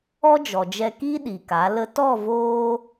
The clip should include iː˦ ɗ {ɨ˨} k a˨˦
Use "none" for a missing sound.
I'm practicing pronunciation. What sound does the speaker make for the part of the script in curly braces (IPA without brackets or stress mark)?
i˨